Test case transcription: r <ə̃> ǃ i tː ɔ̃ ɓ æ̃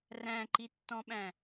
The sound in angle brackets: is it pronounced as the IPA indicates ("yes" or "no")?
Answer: no